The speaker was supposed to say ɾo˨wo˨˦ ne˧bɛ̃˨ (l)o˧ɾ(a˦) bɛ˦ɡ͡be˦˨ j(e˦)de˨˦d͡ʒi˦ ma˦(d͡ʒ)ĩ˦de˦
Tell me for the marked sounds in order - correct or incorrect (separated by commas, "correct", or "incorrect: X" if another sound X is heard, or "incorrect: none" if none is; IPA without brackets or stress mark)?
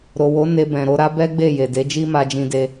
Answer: incorrect: ɾ, correct, incorrect: e˨, correct